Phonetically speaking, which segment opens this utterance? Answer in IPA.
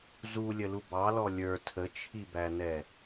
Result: z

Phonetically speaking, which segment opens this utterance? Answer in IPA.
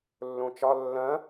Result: lː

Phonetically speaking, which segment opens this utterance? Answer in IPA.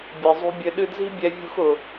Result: bʲ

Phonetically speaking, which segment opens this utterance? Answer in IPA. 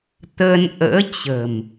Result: t̪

